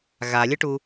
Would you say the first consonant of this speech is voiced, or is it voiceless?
voiced